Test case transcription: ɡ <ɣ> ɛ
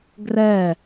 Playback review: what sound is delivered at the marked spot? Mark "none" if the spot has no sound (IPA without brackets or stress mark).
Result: r